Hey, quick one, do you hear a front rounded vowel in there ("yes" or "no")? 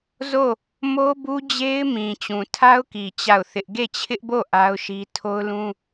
no